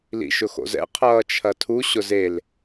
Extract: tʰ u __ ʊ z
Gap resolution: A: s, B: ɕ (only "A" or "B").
B